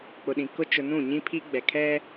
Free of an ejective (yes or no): yes